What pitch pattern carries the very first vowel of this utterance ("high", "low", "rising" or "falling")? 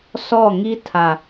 falling